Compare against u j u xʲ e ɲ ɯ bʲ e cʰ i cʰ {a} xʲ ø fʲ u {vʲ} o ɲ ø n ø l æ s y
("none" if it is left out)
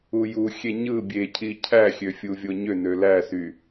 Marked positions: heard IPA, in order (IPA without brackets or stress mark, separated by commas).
æ, vʲ